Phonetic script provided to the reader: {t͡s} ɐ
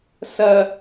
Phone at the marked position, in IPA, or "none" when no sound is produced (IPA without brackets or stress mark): s